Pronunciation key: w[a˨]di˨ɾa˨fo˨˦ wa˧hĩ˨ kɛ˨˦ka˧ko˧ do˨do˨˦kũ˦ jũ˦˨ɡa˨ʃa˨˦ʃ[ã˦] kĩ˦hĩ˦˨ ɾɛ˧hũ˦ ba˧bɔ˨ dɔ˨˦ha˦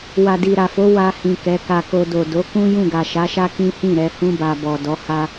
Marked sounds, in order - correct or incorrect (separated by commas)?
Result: correct, incorrect